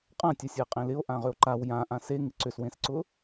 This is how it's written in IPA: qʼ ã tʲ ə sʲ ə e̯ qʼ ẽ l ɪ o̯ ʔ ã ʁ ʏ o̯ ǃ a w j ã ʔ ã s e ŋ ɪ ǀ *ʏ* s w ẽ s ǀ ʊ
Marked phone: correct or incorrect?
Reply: correct